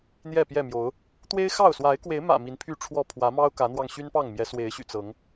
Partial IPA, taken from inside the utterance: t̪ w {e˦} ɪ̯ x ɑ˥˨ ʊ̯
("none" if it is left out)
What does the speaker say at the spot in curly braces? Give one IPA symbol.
e˦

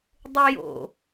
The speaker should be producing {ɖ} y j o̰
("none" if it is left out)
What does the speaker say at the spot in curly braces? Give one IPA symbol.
dˤ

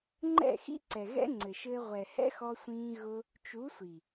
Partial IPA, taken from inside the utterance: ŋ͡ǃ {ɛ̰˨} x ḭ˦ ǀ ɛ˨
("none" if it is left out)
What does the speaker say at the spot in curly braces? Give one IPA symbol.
ɛ̰˦˨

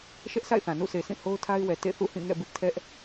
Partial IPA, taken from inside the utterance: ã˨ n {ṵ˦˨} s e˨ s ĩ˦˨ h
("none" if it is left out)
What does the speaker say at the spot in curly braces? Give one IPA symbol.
ṵ˦˨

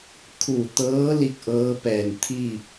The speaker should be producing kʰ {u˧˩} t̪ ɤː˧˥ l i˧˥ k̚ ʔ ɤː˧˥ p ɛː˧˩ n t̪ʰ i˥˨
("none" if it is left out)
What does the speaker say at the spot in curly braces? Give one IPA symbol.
u˧˩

